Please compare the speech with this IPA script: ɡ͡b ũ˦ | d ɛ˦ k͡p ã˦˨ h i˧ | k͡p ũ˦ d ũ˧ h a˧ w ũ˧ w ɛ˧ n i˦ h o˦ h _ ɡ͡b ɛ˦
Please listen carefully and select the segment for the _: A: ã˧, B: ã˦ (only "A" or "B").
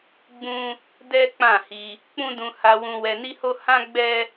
B